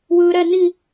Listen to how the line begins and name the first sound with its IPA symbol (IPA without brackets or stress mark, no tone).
w